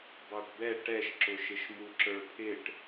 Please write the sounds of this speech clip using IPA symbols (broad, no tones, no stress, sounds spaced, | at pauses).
b ɑ ʈ b ɛ ʈ ɛ ʃ ǁ ʊ ʃ ɪ ʃ m u ǁ ə˞ pʰ ɪ ʈ